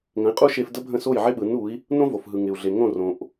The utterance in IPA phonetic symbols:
ŋ ə̃˩˥ i̯ qʼ u˥ ʃ e˧ f d ə˥ bʱ ə̃˥˩ s o˥˩ j ʕ ɪ˥ ɓ ɯ˩˥ n u˩˥ i̯ | n õ˥ v o˩ f ɦ ɯ˩ ŋ ɪ˩ u̯ ɮ e˩ ŋ õ˥˩ r õ˩ ʔ

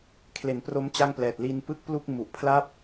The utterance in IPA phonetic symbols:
kʰ l e˩˦ n p r o˦˥ m t͡ɕ a˥˩ ŋ p l ɛː˨˩ t̚ l i˧ n p ɯ˥˩ k̚ p l u˥˩ k̚ m u˨˩ ʔ pʰ l a˥˩ p̚

